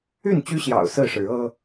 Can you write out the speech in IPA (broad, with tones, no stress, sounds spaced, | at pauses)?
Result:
y˥˨ n t͡ɕ y˦ ɕ j ɑ̰˨˩ ʊ̯ s ɹ̩˥˨ ʂ ɻ̩˨˦ ɤ˦